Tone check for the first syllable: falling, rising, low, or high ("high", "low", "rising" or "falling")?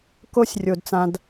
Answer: high